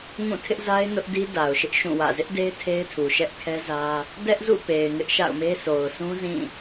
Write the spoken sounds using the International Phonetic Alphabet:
ŋũ˦˨tʰɪ˦ʔza˦ɪ̯ nʊ˦ʔdi˦da˨ʊ̯ ʃɪ˦ʔʃũ˦˨wä̰˦˨ zɪ˦ʔde˦ɪ̯ tʰe˦ɪ̯tʰu˨ʃɛ˦ʔ kʰɛ˦zä˦ | dɛ˦ʔzṵ˦˨ pe˨ɪ̯ ŋɪ˦ʔʃa̰˦˨ʊ̯me˦ sʰo˨ʊ̯sʰũ˦ zĩ˦˨

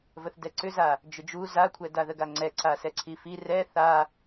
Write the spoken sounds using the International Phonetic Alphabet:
vəθdɛǀʏza | d͡ʒʏd͡ʒu zakʷʰɛ daðəɡaŋ͡ǀɛ ǀasɛǀʰifi rɛ θa

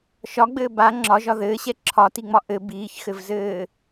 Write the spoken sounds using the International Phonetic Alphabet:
ʃɒɡ͡bɘː ba ŋ͡ǁɒʒɒ ðɘːɕɛ ǁʰɒtiŋ͡mɒ ʔɘ biːçxɘvzɘː

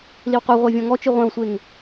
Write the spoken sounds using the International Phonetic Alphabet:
liwqu ʁʷɛvʲɔ̃ŋɔ t͡ʃɨʁʷɛ̃wsʷeŋ

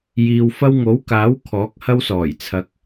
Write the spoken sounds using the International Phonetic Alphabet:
jiː˨wfɐ˥w ŋo˨˥wkaː˨˥w kʰɔː˨˥k̚hɐ˥wsɔː˨˩j t͡sʰɐ˨˥k̚

